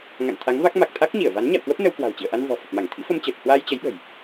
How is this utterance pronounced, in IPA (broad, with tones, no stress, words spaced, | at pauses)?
ŋa̰˧˨nt̪ʰa˨˦ŋva˦˥k̚ ma˨˩k̚t̪ʰa˦˥k̚ɲi˧˩ə̯va˨˦n ɲa̰˧˨wkwə˦˥p̚ nə˧wkwa̤˨˩wt͡ɕḭ˧˨ə̯ʔa˧n vɔ̤˨˩fə˨˩p̚ma˧˩ŋ t̪ʰḭ˧˥fə˧mt͡ɕəː˨˩t̚ hwaː˧jt͡ɕə˨˦jɓə̤˨˩j